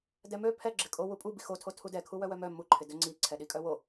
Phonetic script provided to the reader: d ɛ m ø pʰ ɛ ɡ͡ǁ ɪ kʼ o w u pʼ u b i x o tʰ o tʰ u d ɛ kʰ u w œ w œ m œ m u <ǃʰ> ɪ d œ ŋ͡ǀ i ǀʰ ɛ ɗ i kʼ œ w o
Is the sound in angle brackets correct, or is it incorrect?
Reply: correct